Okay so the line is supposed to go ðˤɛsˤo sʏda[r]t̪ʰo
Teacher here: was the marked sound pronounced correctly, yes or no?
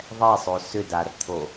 yes